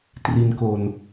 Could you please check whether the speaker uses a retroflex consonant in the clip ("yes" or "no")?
no